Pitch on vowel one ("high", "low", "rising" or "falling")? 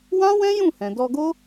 high